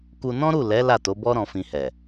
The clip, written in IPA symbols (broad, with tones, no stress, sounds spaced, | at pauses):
k u˧ n ɔ̃˦ ɾ u˦˨ l ɛ˨˦ l a˦˨ t o˨˦ b ɔ˦ ɾ ɔ̃˧ f ĩ˧ h ɛ˨